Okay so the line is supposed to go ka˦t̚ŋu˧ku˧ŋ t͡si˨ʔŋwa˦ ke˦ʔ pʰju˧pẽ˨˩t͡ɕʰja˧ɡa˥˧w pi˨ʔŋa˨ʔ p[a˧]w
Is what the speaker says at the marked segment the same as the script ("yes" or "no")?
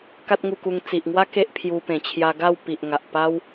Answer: no